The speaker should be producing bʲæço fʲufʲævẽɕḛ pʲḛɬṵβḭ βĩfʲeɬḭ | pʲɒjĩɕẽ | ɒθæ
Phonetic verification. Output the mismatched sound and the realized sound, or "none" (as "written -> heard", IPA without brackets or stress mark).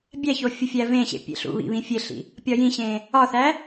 none